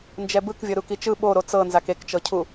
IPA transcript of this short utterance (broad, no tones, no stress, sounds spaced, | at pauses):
n d͡ʒ ɛ b ɯ k vʲ ɤ ɾ u k i t͡ʃ ɯ ɓ o ɾ o t͡s ɤ n z a k e k t͡ʃ ɤ cʰ u